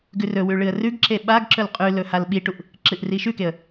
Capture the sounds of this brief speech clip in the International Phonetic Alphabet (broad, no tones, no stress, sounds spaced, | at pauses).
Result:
ɡ ʉ r ɵ w ʉ ɭ ɨ ə̯ r ʉ ɡ ǁ e ɓ a ɡ ǁ ɵ l qʼ ʉ l ɵ h a l ɓ i ʈ u ʔ | ǁ ɨ ʔ r i ʃ ʉ k e ə̯